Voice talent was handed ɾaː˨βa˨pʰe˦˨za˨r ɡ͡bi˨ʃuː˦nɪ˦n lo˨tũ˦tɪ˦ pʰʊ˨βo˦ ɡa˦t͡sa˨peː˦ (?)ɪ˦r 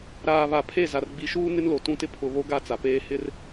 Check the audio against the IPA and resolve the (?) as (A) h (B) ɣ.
A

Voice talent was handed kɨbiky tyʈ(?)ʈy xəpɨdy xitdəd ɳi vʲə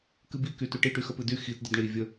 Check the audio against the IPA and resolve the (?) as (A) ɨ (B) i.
B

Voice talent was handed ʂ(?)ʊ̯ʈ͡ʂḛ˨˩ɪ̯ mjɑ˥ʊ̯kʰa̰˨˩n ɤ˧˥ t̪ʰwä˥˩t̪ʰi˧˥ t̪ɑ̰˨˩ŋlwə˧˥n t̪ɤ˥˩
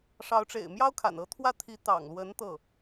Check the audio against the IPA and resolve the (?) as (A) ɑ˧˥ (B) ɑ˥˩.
A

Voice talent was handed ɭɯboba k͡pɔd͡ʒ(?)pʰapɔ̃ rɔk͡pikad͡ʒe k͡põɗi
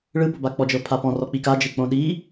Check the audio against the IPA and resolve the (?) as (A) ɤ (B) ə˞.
A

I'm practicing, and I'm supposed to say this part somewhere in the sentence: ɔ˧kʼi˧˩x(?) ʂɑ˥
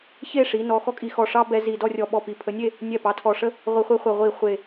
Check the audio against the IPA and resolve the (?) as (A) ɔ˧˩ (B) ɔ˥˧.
A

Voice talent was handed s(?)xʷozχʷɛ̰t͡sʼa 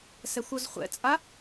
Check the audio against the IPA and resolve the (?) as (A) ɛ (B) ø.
A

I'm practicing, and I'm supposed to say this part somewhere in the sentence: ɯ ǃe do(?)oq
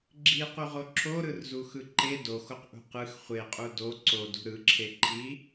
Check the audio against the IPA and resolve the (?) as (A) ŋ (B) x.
B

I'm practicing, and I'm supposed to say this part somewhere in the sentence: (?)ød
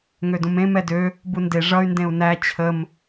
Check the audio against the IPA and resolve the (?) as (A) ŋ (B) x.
A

